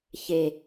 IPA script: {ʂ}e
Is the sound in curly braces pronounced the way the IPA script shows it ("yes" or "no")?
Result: no